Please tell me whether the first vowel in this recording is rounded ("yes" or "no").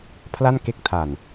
no